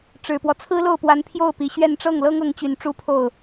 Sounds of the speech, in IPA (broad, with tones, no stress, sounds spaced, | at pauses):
ʈ͡ʂ ɻ̩˨˩ p w ɔ˦ t͡sʰ ɹ̩˥ l o˥˩ ʊ̯ p w a˧˥ n pʰ j o˥˩ ʊ̯ p i˨˩ ɕ ɥ ɛ˥˧ n ʈ͡ʂ ɤ˥˩ ŋ l ɤ˥ ŋ ɤ˧˥ ŋ t͡ɕ y˨˩ n ʈ͡ʂ u˥ pʰ o˥˩ ʊ̯